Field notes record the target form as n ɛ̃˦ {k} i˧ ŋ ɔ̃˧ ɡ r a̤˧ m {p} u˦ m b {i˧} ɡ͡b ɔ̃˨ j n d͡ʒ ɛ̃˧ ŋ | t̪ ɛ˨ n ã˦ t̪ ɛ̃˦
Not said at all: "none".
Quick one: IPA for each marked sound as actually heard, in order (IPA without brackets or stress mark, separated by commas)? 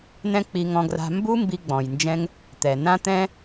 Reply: k͡p, b, i˧